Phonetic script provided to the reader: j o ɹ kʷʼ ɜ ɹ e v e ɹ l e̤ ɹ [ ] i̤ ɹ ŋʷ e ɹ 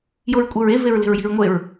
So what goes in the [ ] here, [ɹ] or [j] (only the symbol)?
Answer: j